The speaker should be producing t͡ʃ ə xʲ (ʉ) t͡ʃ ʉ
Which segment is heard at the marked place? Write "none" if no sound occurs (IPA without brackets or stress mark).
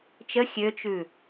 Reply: ø